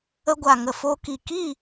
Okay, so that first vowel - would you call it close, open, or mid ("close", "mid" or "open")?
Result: mid